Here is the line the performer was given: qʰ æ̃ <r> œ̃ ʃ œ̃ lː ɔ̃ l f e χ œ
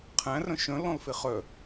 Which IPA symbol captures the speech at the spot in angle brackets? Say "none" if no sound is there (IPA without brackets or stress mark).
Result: r